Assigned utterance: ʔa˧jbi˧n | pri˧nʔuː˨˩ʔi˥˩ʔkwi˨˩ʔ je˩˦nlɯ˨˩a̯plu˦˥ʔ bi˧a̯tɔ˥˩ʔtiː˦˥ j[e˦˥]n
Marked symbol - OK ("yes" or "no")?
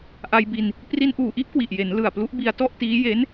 yes